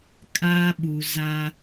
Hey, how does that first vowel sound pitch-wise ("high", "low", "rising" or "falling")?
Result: high